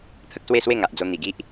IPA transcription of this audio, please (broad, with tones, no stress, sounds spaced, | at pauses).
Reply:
t̪ʰ ə˦ k̚ s w e˥˧ s w e˥˧ ŋ a˨ ʔ d͡z o˧ n̪ i˨˩ ɡ i˦ ʔ